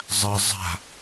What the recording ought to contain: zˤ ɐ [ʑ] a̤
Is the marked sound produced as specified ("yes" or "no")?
no